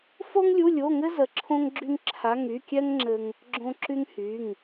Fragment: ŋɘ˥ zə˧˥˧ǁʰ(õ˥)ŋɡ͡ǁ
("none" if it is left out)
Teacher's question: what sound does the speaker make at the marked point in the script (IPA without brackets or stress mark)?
õ˥